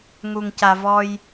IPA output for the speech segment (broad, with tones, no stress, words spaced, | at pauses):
ŋu˨ŋca˨ vɔ˦j